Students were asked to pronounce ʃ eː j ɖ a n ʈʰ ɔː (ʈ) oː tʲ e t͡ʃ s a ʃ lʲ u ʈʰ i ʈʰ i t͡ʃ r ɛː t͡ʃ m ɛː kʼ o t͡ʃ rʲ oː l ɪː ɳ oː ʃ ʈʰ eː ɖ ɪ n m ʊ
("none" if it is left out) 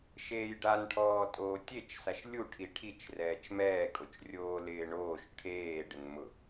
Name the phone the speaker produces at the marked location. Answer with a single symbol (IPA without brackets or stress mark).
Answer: tʼ